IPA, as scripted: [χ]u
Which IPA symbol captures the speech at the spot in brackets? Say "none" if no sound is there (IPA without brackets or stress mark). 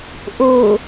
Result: ʔ